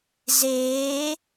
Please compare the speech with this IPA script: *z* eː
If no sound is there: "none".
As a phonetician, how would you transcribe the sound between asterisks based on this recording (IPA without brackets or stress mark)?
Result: z